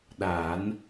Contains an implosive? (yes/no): yes